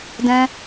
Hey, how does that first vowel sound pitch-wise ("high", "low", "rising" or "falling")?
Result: high